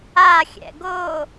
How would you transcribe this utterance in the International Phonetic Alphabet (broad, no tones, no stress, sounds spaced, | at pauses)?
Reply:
a xʲ ɛ̰ ɡ o